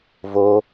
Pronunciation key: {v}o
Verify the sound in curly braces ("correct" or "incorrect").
correct